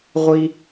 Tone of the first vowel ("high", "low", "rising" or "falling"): high